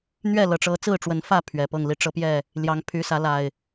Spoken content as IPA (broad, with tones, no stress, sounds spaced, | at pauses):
n̪ ɥ ɛ˥˨ l ɤ˨˩ ʈ͡ʂ ɤ˨˦ t͡s ɹ̩˥˨ ʈ͡ʂ w ə˨˦ n f ä˥˨ pʰ ɥ ɛ˨˩ p ɤ˥˨ ŋ l i˥˨ ʈ͡ʂ ɤ˦ p j ɛ˥˨ | l j ɑ˨˦ ŋ pʰ y˨˦ s ä˨˦ l a˨˩ ɪ̯